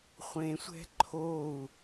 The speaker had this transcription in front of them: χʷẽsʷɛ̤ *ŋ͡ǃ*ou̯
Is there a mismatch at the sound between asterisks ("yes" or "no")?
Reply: yes